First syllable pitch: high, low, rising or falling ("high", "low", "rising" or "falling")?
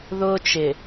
high